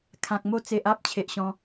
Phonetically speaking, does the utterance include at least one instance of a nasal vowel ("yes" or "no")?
yes